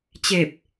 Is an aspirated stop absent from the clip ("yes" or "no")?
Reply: yes